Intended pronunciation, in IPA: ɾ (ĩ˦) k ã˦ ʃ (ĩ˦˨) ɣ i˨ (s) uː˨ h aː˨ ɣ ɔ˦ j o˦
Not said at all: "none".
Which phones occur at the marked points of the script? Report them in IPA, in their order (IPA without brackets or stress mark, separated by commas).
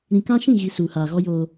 ĩ˨, ĩ˦˨, s